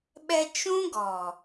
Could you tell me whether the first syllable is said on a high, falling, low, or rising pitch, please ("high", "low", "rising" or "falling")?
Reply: high